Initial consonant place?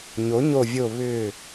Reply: palatal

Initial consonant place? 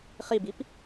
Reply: uvular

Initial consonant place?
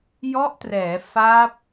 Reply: palatal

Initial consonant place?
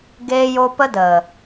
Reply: velar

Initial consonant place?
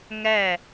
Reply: velar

